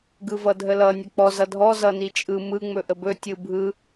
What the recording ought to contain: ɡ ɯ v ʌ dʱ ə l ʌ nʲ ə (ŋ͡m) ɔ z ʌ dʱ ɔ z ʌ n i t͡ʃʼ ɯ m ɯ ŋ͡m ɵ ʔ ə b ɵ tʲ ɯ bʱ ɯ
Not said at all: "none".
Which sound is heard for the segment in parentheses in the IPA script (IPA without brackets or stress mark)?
k͡p